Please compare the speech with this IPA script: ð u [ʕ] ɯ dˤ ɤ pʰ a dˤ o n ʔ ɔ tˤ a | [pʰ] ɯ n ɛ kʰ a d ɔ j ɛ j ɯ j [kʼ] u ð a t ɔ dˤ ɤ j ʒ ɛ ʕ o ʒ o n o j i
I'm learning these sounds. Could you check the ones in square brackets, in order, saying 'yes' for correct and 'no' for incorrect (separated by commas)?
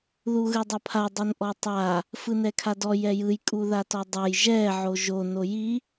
no, no, yes